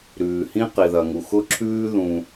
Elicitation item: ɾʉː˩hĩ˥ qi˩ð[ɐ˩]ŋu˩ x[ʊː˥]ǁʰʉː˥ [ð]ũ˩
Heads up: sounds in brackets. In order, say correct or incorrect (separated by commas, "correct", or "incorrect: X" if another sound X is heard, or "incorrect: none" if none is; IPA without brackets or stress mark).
correct, incorrect: ʊ˥, correct